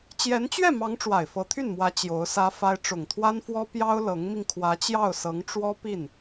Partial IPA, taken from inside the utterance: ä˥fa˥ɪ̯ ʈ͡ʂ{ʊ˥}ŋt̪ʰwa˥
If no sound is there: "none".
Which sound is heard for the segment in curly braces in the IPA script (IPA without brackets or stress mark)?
ʊ˨˩